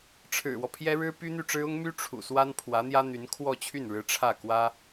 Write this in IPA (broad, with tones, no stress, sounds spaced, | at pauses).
ʈ͡ʂʰ ɻ̩˨˩ w ɔ˦ pʰ j ɛ˥ ɻ ɻ̩˥ p y˥ n̪ y˥˩ ʈ͡ʂ ɻ̩˥ ʊ˥ ŋ m y˥ ʈ͡ʂʰ ṵ˨˩ s w a˥ n pʰ w ä˧˥ n̪ j ä˥ n̪ y˧˥ n kʰ w ɔ˥˧ t͡ɕʰ y˥˩ n ɻ ɻ̩˧˥ ʈ͡ʂʰ ä˥˩ k w ä˥